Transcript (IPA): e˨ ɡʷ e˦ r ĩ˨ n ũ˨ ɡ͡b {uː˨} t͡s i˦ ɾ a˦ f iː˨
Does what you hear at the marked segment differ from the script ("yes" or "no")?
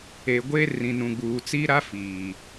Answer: no